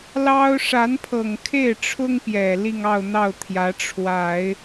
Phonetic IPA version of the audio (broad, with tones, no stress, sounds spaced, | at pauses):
l ɑ˥ ʊ̯ ʂ a˧˥ n pʰ ɤ˨˩ ŋ kʰ e˥˩ ɪ̯ ʈ͡ʂʰ ʊ˥ ŋ p j ɛ˨˩ l i˥˧ ŋ ɑ˥˧ ʊ̯ n̪ ɑ˥˩ ʊ̯ t̪ʰ j ä˧˥ ʈ͡ʂʰ w a˨˩˦ ɪ̯